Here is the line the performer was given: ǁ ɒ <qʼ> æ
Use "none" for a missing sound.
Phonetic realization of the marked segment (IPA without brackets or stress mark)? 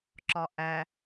ʔ